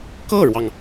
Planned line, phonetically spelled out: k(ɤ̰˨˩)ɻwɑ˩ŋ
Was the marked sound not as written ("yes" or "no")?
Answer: yes